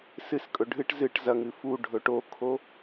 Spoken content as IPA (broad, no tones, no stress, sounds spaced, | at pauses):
s ɨ s kʼ ɵ ɖʱ ɨ ʈ z ɨ ʈ z ɐ ŋ ɨ f u ɖʱ ɵ ʈ o kʰ o